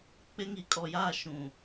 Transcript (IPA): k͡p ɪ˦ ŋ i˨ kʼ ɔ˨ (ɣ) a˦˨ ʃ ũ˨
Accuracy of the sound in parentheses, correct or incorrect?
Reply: incorrect